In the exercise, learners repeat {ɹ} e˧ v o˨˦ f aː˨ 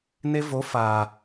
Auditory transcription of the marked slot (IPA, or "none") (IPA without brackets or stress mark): n